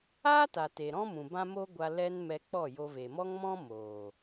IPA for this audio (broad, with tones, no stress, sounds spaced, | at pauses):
aː˦ t a˨ t e˨ ɾ ɔ̃˦ m ũ˨ b ã˦ m o˦ ɡʷ a˧ l ɛ˦ n m ɛ˧ k͡p ɔ˦˨ j o˧ v e˨ m ɔ˦ ŋ m ɔ̃˦ m oː˨